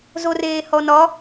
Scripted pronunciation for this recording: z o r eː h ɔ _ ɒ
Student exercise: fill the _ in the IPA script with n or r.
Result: n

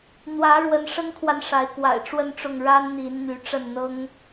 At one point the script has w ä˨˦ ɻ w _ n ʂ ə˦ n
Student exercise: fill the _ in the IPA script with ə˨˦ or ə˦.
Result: ə˨˦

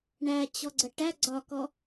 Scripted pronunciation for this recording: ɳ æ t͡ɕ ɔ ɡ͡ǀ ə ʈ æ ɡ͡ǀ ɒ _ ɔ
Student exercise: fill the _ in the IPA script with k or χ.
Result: k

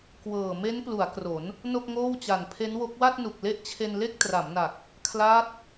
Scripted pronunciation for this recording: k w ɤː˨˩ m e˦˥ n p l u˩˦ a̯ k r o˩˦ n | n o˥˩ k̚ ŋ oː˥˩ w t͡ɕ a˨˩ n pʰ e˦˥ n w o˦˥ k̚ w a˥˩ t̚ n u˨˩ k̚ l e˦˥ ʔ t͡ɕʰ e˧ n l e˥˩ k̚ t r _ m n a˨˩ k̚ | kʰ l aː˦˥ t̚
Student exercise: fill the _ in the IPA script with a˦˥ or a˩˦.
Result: a˩˦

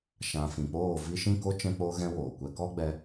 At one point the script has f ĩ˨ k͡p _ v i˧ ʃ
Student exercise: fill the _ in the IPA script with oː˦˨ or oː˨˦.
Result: oː˦˨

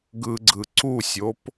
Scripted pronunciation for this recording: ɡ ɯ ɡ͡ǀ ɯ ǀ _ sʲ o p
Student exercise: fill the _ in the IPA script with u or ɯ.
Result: u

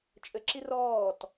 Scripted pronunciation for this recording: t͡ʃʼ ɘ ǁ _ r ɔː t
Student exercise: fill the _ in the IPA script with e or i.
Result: i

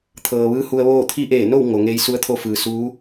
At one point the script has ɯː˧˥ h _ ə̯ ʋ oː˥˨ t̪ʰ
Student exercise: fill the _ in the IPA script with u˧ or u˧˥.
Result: u˧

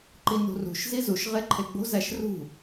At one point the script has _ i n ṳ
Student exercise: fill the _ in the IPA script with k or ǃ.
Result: ǃ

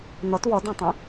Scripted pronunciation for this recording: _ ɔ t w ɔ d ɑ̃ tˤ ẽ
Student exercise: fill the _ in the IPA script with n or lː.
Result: n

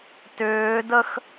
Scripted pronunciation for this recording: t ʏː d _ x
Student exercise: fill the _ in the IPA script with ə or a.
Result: ə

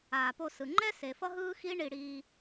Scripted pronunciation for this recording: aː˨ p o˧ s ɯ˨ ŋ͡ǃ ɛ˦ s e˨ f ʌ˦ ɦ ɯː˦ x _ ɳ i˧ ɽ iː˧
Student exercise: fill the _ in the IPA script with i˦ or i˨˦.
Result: i˦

